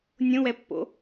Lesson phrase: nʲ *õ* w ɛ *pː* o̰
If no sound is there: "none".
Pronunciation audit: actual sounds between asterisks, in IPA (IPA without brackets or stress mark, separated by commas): õ, pː